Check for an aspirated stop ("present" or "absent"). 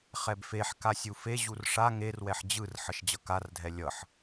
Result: absent